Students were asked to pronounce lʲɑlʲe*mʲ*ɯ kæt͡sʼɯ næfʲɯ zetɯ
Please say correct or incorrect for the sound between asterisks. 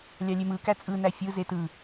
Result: incorrect